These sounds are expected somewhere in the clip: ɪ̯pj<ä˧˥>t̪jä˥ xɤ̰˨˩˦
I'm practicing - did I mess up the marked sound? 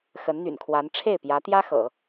no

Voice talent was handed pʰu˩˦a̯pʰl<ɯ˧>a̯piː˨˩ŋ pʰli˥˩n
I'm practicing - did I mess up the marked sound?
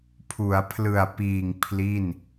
yes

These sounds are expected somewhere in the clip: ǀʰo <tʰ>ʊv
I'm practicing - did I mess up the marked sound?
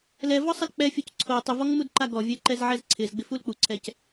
yes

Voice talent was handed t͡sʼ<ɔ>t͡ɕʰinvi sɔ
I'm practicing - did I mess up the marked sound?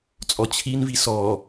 no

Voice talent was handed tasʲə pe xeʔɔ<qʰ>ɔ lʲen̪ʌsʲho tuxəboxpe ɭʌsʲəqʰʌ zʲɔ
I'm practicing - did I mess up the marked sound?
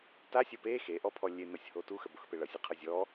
yes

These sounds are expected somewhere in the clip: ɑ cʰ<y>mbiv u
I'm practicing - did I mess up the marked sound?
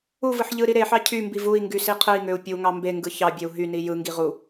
no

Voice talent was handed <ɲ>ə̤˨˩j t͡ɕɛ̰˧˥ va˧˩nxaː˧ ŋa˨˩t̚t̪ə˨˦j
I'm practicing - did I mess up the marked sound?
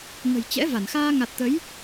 yes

